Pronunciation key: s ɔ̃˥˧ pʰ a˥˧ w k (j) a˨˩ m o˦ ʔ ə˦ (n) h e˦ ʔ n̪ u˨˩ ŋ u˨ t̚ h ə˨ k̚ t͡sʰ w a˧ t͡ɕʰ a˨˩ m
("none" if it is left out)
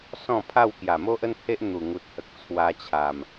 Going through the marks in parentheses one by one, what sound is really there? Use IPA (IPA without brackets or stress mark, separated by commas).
j, n